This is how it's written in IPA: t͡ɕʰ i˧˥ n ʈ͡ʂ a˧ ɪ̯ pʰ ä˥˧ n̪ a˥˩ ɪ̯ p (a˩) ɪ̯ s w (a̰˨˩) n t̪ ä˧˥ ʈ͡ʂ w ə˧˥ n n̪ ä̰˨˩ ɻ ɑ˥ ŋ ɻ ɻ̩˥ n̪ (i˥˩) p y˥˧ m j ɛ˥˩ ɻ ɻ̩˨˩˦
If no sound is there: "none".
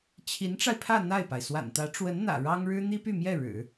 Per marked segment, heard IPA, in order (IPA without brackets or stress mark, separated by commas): a˩, a̰˨˩, i˥